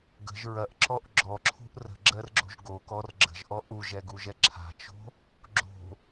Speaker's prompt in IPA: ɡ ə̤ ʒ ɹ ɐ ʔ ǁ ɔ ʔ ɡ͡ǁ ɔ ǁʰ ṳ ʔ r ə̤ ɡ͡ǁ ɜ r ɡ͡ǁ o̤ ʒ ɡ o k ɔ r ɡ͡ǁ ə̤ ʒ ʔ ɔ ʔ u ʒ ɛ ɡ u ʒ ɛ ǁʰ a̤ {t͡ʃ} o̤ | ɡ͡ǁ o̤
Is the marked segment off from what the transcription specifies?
no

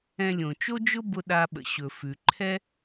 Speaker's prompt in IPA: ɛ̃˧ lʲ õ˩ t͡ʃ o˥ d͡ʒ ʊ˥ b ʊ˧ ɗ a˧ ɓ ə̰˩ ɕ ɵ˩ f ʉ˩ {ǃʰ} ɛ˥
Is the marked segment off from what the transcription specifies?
no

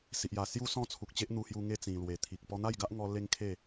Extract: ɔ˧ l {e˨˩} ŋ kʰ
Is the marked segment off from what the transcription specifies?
yes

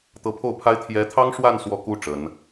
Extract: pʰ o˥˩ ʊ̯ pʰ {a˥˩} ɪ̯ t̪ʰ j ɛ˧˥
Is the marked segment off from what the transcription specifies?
yes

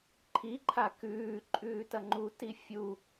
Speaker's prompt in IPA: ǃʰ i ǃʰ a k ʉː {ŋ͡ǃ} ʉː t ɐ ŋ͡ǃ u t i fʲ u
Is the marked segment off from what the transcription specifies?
yes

